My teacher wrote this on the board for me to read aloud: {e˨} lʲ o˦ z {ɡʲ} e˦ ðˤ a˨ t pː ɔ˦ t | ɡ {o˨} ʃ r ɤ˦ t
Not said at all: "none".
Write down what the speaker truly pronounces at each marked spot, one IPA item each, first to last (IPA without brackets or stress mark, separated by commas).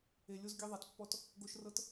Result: e˨, ɡʲ, o˦